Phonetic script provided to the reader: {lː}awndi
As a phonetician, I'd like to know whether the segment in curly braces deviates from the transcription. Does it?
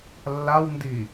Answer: no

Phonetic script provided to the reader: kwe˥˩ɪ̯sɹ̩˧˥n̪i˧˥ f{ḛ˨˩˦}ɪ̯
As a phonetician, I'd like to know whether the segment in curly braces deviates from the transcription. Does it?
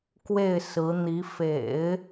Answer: no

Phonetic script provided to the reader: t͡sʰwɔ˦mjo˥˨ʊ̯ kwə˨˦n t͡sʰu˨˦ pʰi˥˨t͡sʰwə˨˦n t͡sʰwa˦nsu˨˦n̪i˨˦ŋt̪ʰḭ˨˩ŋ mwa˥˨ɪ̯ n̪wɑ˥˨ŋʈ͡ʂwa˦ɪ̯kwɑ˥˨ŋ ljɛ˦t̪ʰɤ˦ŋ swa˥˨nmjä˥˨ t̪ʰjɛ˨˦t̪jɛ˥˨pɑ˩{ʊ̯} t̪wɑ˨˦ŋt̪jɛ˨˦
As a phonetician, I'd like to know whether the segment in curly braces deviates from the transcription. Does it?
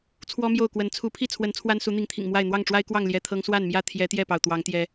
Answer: no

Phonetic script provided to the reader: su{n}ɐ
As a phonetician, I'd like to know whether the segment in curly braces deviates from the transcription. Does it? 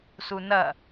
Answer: no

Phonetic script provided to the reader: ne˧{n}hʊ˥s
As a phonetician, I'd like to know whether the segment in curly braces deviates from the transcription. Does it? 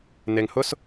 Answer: yes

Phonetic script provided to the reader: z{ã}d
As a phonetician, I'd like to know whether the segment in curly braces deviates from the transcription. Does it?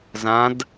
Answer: no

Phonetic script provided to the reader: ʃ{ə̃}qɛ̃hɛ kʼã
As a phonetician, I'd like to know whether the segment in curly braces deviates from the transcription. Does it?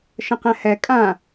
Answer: no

